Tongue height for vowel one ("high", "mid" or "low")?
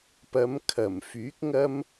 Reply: low